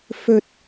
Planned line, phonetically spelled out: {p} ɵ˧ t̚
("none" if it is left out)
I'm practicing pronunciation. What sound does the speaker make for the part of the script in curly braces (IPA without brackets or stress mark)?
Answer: f